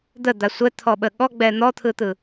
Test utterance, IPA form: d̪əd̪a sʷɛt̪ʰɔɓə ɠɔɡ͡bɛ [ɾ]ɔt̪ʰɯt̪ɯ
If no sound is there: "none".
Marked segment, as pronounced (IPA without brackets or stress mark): n̪